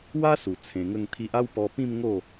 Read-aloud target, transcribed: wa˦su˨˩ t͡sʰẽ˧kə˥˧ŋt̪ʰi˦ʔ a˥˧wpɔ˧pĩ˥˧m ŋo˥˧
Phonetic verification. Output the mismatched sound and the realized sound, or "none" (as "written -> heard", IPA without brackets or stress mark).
k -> ŋ